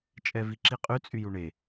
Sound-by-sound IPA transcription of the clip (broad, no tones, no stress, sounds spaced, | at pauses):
t͡ʃʼ ɛ v i ǁ i qʼ y t͡sʼ y j u ɳ e